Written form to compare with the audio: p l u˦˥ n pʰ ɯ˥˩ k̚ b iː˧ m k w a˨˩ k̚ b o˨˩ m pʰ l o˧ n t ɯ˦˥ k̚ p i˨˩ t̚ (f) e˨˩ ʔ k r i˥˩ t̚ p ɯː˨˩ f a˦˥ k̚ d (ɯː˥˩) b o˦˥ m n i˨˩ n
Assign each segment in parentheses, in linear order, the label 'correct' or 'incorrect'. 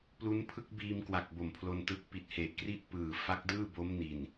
incorrect, correct

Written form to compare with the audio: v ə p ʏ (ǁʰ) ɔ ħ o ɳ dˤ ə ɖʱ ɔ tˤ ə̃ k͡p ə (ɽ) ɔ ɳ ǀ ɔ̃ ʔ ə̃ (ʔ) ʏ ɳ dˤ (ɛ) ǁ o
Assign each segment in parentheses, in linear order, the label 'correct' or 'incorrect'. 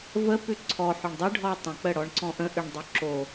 incorrect, correct, correct, incorrect

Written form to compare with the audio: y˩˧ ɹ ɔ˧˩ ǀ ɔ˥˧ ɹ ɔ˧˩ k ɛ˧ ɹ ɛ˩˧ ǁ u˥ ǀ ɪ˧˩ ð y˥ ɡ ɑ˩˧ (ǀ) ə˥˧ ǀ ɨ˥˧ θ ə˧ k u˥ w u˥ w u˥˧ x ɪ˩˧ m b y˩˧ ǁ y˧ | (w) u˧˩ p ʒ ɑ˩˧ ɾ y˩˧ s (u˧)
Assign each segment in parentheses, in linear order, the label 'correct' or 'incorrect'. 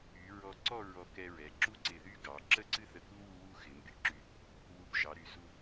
incorrect, correct, correct

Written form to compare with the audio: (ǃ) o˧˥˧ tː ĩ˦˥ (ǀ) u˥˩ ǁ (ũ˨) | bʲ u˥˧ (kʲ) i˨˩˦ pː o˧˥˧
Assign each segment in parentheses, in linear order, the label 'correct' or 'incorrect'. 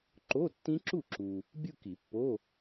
correct, incorrect, incorrect, incorrect

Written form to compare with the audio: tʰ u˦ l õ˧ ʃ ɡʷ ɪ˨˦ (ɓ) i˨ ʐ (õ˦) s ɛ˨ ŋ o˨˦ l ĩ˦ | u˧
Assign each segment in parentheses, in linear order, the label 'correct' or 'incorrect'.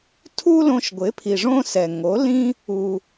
incorrect, correct

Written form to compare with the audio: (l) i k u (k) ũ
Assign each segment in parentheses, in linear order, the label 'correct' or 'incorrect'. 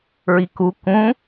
incorrect, correct

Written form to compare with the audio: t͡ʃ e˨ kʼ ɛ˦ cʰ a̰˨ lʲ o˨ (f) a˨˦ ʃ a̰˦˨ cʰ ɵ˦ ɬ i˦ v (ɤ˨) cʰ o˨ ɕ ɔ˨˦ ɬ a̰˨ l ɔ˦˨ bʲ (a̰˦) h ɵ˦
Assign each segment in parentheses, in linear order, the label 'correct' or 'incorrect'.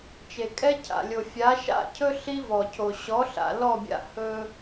incorrect, incorrect, correct

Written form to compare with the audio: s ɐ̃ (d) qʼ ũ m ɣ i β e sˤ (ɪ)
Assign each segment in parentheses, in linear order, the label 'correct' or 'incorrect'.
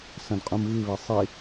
correct, incorrect

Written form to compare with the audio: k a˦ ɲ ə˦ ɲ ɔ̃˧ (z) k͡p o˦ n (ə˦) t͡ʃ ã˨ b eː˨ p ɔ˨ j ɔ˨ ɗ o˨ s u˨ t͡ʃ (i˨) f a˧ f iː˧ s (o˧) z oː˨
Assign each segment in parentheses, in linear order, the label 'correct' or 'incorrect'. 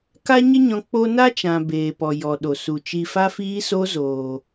incorrect, incorrect, correct, correct

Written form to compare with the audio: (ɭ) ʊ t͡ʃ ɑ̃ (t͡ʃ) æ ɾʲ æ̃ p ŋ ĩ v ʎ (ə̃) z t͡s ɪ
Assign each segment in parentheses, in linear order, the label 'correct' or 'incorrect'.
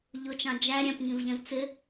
incorrect, incorrect, correct

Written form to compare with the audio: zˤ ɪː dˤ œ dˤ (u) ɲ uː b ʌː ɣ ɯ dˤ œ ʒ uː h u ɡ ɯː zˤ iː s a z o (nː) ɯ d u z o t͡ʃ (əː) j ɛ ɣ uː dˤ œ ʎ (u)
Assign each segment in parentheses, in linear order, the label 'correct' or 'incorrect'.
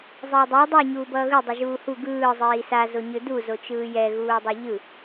incorrect, incorrect, incorrect, incorrect

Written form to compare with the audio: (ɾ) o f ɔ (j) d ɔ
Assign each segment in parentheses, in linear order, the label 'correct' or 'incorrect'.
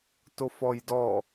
incorrect, correct

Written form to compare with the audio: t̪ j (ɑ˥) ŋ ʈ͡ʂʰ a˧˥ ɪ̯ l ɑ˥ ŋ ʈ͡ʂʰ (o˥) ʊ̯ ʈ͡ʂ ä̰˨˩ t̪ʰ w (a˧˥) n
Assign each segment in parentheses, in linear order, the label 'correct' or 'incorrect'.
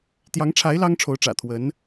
incorrect, incorrect, incorrect

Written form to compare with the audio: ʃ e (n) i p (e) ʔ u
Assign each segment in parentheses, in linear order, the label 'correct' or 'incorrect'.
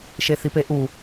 incorrect, correct

